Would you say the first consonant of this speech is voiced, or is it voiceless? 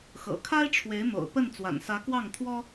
voiceless